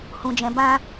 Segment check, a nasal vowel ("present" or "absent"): present